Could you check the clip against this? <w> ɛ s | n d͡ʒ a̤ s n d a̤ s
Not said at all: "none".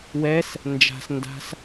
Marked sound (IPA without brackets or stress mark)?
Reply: w